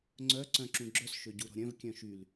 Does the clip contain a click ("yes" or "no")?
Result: yes